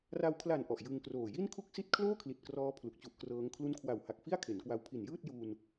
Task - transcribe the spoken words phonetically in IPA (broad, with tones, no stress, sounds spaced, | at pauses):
r a˧ w kʰ l a˨˩ n ʔ ɔ˨˩ ʔ j ɯ˧ ŋ k r oː˨˩ j i˥˩ n kʰ u˥˩ k̚ s i˥˩ t̚ kʰ l oː˥˩ kʰ l i˨˩ t̚ k r ɔː˦˥ pʰ l u˨˩ k̚ t͡ɕ u˦˥ ʔ k r ɤː˦˥ ŋ kʰ l u˦˥ n kʰ w a˨˩ w h a˨˩ k̚ f i˥˩ a̯ kʰ e˩˦ n k w a˧ w pʰ i˨˩ n j ɯː˥˩ t̚ j uː˧ n